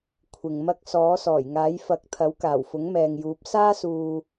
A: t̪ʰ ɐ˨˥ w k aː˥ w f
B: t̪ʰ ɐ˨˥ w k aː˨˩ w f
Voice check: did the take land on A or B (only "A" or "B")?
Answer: B